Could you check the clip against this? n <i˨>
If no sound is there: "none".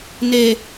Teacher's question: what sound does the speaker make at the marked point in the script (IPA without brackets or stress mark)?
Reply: e˨